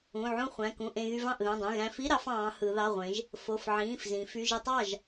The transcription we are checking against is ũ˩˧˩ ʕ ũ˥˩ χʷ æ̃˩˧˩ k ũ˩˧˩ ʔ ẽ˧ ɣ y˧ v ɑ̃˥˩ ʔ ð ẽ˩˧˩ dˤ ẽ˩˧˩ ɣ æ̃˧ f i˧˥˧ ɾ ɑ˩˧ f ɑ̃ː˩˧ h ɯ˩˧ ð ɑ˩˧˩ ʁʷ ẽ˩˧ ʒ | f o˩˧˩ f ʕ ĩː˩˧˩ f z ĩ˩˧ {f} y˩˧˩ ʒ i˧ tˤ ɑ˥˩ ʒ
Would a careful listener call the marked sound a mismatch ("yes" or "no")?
no